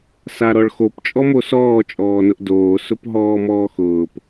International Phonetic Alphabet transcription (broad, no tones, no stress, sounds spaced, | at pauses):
s a ɾ ɔ ɭ x o p t͡ʃʼ ɔ m o s ɔː t͡ʃʼ ɔː n ʊ ʔ d oː s ʊ p ɦ ɔː m ɔː x ʊː p